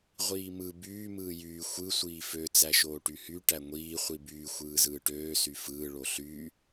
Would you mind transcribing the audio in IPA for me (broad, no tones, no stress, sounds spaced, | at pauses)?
ʁʷ iː m ɯ b yː m ɯː j yː xʷ ɯ sʷ iː f ø t͡s æ ʃ oː ʈ y h y ʈ æ ŋʷ iː χʷ i b yː xʷ ɯː z ɯː ʈ øː s y f ɯː ɭ o ɬ y